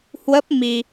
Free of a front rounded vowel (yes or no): yes